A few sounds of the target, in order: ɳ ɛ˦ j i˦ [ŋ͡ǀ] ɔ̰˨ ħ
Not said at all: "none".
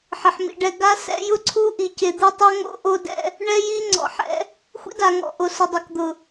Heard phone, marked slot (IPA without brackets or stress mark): ŋ͡ǀ